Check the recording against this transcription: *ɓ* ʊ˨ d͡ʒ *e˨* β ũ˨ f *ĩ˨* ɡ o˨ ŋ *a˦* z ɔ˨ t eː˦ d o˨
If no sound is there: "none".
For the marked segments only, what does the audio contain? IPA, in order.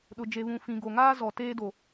ɗ, e˨, ĩ˨, aː˦

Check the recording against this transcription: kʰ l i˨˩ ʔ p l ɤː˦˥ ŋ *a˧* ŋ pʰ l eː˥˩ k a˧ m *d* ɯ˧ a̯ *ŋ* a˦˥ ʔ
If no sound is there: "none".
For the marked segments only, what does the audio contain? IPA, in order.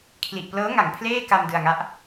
a˨˩, d, ŋ

